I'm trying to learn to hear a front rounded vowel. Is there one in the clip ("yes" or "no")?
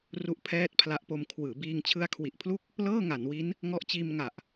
no